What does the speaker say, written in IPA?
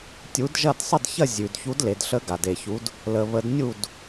tʲu˨˥dʒɐ˥˨d sˤə˥˨dçɐ˥˨ zʲʉ˨d çu˨˥dle˨dɬə˨˥ ɡa˨de˨çu˨˥d | lə˨ βə˨˥dnʲu˥˨d

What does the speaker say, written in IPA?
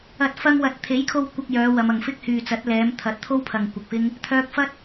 ɐ˨t̚ fɐ˧ŋwɐ˨t̚t̪ʰe˨˥jkʰo˧w kʷɐ˧k̚ jœː˨˧ wɐ˨˧mɐ˨ŋ fɪ˥k̚hyː˨t͡sɐ˨˥t̚ lɛː˨˧m t̪ʰɐ˨˥t̚t̪ʰo˥wpʰɐ˨ŋ kʷɪ˨k̚fɪ˥ŋ | t̪ʰœː˧k̚ fɐ˥t̚

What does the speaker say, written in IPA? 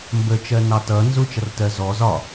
mbət͡ʃɜ nɑtʌ nzʊt͡ʃʌrtɜ zɔ zɒ

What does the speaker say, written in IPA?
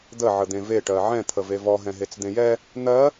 d̪ə ʕəd̪ẽve ʈɜʕɛ̃ t̪ʰəvevɔ ɦɛ̃ɦet͡sd̪ẽjɛ | n̪ɜ

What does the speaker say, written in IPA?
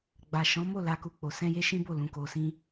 ɡ͡ba˨ʃɔ̃˨˦ mo˦˨la˨ku˨ k͡po˨sɛ̃˧je˦ ʃĩ˦bo˦˨ lũ˨ko˨sĩ˧

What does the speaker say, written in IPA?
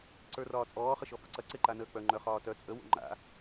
ǀə˞rɒːt͡sʼɔː χəʃɔfuǀɐ ǀeǃanəːk͡pœ ŋ͡ǃœχɒːtœ t͡sʼə wo̰ŋ͡ǃa̰

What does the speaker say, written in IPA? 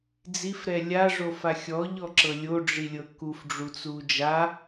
d͡zifɾɛ lʲaʐofa xʲɔʎɔǁɤ lʲoɖ͡ʐilʲɤ kufɖ͡ʐut͡su d͡ʒa

